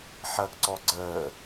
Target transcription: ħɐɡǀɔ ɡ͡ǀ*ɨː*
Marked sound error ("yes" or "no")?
yes